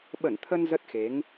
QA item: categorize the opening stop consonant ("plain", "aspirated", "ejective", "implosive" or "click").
implosive